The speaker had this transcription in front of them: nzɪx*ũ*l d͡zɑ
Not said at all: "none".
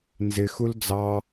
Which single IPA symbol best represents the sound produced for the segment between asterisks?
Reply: u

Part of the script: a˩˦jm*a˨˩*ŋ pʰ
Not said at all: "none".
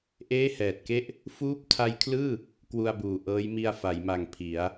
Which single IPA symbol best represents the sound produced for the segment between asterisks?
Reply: a˨˩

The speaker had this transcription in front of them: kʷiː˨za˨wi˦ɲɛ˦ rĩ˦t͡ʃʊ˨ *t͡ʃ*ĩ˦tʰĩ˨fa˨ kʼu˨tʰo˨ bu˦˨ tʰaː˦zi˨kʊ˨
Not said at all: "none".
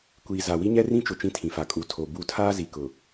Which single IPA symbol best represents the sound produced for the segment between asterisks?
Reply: t͡ʃ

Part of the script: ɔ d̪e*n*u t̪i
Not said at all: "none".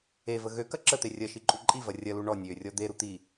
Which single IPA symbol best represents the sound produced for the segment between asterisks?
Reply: ɾ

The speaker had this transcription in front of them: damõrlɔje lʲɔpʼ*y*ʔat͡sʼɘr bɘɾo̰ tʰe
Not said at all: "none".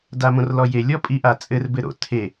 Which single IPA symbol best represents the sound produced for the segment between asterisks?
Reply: i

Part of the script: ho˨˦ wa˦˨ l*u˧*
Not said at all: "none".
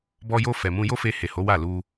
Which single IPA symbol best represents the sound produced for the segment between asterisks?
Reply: u˧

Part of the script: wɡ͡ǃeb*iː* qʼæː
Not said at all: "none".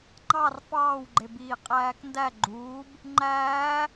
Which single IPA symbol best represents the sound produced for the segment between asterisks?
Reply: iː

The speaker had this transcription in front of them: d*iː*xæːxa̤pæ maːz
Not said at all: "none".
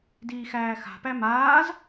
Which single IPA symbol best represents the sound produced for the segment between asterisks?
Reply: iː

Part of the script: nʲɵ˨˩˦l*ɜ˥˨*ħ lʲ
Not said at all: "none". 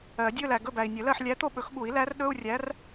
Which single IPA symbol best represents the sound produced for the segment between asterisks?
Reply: ɜ˥˨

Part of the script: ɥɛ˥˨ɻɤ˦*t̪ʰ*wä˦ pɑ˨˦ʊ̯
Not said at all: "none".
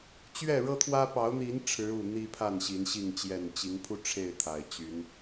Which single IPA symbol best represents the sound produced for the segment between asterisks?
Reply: t̪ʰ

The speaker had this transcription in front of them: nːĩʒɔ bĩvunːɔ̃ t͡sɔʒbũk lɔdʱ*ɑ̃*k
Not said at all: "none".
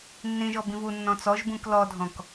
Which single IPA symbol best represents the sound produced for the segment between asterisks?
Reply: ɔ̃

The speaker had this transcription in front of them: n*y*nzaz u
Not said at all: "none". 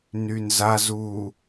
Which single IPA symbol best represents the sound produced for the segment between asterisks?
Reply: y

